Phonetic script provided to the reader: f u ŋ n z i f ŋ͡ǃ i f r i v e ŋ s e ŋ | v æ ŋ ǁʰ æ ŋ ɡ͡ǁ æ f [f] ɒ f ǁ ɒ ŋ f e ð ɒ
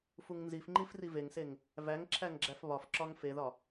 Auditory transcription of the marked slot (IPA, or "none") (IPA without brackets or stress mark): β